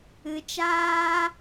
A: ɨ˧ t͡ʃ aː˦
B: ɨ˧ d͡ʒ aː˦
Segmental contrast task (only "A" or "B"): A